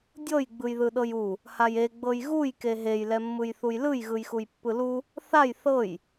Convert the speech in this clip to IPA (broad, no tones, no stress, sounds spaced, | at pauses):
dʲ ɤ j ɡ͡b ɯ j ð ɯ ɗ ɤ j u | h a j e ɡ͡b ɤ j ɣ u j k e ɦ e j l ɛ mː ɯ j θ u j l ɯ j ɣ ɯ j x u j pː ɯ l u | θ a j θ ɤ j